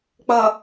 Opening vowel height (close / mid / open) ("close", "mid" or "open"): mid